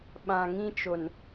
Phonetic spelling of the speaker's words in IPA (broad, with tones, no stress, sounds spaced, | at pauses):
ɓ ã˨ ŋ ĩ˦ t͡ʃ o˨ n